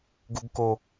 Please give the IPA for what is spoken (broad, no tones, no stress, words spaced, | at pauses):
ɡuɡko